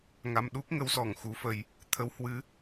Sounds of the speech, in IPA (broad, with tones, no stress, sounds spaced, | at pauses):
ŋ a˧ m ɗ u˦˥ k̚ ŋ ə˨˦ w s ɔ˧˩ ŋ x u˨˦ f ə˧ j | t̪ʰ ə˨˦ w h w ɨ˨˦